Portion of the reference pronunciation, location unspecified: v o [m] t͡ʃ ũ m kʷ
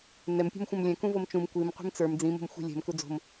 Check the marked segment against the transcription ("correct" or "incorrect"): correct